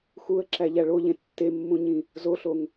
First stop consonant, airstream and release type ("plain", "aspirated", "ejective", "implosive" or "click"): click